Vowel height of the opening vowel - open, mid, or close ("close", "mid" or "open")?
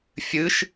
close